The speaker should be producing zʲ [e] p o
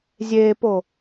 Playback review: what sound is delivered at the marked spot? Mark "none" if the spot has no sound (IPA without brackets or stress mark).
e